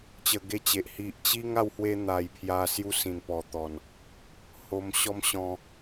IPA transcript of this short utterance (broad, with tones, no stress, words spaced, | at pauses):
t͡ɕə˧ɡe˦t͡ɕe˨ʔ hi˨ʔt͡ɕi˦ŋ a˥˧whwe˦n̪a˨˩jpʰja˧ sju˦sĩ˨˩npɔ˨˩t̪ɔ˨˩n | ho˧mɕɔ˦mɕɔ̃˧